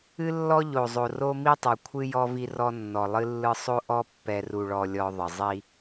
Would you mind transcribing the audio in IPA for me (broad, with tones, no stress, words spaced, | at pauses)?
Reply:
ɨ˦ lːɔ˦ʎo˨zˤo˨ ro˦mi˦tˤo˨ kʷʰɨ˦ jɔ˦vi˦rɔ˦nːɔ˨ lˠɨ˦lːɯ˦ sˤo˦ʔɔ˦ pːɛ˨ru˨ɭɔ˨ lʲɔ˦ðˤə˨ zˤi˦